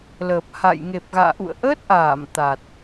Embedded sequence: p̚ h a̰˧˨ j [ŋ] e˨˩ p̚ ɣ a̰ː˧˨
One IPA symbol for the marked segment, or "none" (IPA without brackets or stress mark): ŋ